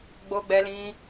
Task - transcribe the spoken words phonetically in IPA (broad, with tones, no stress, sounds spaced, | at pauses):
ɡ͡b o˧ ɡ͡b ɛ˧ l ĩ˧